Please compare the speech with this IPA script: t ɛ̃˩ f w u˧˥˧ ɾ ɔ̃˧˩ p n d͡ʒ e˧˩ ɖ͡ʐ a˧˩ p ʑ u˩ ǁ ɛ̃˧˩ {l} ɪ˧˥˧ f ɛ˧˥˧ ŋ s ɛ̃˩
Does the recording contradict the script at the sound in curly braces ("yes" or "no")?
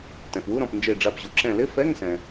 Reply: no